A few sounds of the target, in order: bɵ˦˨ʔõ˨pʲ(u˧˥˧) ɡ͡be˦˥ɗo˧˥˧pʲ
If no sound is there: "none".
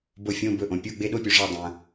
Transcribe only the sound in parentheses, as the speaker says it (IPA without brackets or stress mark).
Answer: u˧˥˧